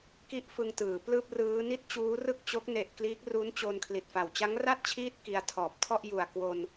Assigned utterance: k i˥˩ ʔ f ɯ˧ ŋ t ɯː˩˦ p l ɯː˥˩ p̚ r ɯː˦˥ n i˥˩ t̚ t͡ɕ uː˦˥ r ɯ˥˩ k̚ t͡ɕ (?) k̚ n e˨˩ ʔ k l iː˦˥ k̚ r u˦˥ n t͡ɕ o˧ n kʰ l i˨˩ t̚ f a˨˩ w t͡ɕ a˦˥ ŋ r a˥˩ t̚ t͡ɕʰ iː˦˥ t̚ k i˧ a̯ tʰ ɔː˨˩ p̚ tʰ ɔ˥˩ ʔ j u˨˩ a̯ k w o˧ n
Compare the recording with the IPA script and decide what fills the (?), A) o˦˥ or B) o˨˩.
A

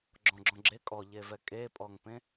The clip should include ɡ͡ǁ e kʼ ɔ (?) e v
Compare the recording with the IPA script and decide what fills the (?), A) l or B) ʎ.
B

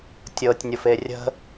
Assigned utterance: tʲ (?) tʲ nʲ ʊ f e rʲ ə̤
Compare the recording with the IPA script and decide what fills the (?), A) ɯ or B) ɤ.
B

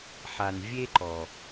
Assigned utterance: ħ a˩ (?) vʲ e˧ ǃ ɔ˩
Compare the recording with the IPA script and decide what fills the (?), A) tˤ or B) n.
B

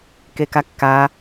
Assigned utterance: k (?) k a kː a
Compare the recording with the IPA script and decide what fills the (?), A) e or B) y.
A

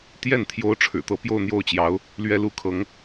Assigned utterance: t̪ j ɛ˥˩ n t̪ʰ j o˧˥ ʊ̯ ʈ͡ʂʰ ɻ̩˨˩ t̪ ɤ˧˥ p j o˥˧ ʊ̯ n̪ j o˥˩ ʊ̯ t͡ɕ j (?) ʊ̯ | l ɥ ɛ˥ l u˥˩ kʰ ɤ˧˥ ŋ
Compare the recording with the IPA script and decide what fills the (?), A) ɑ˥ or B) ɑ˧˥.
B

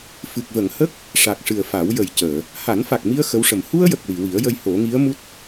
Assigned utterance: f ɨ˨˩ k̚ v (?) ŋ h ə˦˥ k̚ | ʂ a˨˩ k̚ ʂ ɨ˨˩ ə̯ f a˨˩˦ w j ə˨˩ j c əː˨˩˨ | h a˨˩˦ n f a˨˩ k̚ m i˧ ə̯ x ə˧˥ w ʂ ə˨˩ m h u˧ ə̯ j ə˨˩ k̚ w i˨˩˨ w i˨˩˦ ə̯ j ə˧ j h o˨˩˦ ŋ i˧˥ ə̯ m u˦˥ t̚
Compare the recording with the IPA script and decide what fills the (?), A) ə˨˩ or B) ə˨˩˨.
B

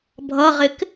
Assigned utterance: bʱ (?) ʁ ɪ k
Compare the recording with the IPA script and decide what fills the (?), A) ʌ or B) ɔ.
A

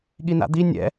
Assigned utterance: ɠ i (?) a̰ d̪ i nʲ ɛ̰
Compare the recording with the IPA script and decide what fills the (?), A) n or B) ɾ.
A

